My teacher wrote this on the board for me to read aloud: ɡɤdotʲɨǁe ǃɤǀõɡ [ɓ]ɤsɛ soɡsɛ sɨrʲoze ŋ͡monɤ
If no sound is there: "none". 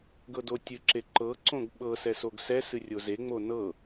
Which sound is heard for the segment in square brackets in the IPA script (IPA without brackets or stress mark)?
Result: ɓ